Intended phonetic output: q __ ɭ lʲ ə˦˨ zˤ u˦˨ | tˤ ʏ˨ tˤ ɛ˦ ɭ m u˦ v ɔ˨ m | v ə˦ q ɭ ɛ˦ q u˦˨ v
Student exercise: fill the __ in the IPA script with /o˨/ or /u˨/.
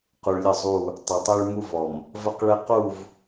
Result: u˨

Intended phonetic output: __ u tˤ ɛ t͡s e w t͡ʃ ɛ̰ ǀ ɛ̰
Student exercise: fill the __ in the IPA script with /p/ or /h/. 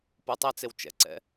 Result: p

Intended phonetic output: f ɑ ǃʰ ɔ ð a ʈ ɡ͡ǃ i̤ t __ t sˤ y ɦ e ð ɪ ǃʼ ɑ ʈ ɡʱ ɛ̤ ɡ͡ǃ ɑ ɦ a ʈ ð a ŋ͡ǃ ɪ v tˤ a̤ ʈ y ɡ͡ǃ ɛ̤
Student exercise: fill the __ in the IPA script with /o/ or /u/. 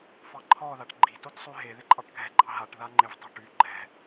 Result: o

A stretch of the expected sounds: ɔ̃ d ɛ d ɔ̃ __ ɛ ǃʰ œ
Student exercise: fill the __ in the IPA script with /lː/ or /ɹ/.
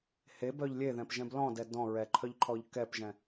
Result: ɹ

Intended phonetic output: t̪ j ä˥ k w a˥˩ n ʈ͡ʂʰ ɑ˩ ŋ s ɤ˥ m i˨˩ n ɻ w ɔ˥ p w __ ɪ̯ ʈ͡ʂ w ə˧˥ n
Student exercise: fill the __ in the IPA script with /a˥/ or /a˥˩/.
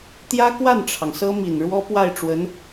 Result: a˥˩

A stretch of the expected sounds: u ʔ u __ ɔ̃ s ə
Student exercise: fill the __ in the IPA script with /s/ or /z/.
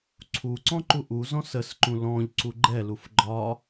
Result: z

